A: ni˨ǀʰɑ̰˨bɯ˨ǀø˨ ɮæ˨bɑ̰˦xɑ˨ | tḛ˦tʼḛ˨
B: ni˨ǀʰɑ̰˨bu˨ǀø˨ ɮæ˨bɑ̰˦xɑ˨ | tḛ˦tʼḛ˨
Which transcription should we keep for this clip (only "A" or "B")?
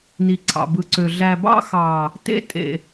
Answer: A